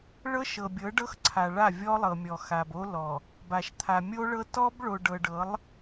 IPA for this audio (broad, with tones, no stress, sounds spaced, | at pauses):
ɭ ɤ˦ ʃ ɤ˨ bʲ ɤ˨˦ ɖ ɤ˦ x ǀʰ a˨ ɭ a˦˨ vʲ ɔ˦ lˠ ɤ˨ mʲ ɔ˨ x a˨ b o˦ l ɔ˨ | b a˨ ʃ t̪ʰ a˨ mʲ o˦ ɭ ɤ˦ t ɔ˦ b ɭ o˨ ɖ ɤ˨ ɖ ɤ˨˦ lˠ